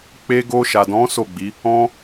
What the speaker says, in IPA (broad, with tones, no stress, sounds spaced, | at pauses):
k͡p e˧ ɡ o˧ ʃ a˨ d ɔ̃˨˦ s o˦˨ ɡ͡b i˨˦ | ɔ̃˧